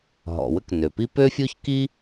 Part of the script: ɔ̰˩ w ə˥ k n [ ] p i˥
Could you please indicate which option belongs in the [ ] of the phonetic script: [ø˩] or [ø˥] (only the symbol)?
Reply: ø˩